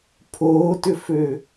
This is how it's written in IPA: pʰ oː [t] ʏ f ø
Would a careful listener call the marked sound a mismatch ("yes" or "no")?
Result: no